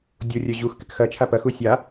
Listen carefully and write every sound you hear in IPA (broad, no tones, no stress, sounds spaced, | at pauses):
dʲ o rʲ œ ʑ u x k ɪ k x ɐ t͡ʃʰ a p ɐ x u sʲ a